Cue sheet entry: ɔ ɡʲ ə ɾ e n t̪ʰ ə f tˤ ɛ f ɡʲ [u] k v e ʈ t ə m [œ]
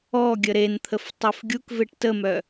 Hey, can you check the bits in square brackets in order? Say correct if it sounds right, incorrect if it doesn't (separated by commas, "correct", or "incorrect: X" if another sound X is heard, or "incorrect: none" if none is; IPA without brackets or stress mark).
correct, correct